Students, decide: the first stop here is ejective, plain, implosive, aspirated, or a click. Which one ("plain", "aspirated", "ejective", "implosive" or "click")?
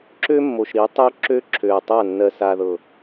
click